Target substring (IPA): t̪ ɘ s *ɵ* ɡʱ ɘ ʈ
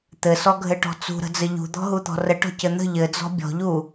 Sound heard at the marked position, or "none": ɔ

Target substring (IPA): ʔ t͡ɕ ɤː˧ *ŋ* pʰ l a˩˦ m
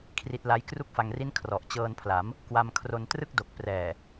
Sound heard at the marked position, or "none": n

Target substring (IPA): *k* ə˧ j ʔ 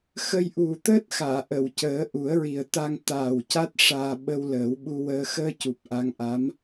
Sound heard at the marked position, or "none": x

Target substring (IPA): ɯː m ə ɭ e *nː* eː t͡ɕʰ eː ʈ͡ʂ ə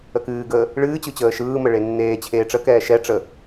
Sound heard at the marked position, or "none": nː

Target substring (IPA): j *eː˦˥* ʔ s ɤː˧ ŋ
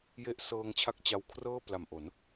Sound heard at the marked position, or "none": e˦˥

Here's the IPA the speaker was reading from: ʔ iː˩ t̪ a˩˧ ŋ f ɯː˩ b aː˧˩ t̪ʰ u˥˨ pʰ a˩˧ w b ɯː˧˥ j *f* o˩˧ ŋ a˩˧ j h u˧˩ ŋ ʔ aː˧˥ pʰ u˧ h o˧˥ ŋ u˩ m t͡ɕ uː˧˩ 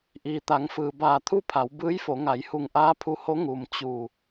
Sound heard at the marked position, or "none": f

